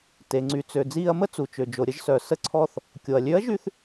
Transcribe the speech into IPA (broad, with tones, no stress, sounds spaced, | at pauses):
t e˩ ŋ͡ǀ y˩ t͡s ø˩ d͡z iː˧ ɐ̯ m ə˥ t͡s u˩ t͡ʃ ø˩ d͡ʒ o˩ ɾʲ ə˧ ʒ s œ˩ s ə˧˥ ǀʰ ɔ˧ θ | kʲ o˩ ɐ̯ lʲ ø˧˥ ɐ̯ ʒ y˧ θ